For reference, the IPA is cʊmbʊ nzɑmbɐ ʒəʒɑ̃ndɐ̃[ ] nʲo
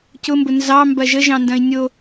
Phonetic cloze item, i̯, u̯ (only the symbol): i̯